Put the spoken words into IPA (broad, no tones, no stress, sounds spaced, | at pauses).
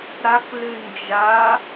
ɾ a k l ʉ n d͡ʒ a